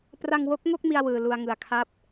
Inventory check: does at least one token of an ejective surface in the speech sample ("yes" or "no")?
no